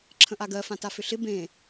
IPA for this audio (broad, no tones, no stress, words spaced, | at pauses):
ǁʰə̃ʔaɡɜ fãtafʏɬɪ bẽ